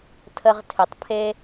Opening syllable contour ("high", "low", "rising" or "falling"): high